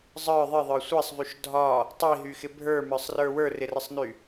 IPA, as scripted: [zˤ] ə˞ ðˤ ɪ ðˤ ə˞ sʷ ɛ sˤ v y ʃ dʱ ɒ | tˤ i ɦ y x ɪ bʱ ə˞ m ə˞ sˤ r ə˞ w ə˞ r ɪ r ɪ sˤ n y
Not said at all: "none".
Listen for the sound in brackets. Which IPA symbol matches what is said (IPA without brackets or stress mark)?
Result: zˤ